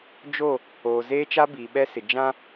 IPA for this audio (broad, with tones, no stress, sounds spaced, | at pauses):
d͡ʒ o˦˨ | oː˨ z eː˦ t͡ʃ a˦ b iː˨ ɓ ɛ˦ s ɪ˨ d͡ʒ ã˦